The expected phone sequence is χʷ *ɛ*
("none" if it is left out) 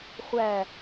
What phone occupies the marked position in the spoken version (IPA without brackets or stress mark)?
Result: æ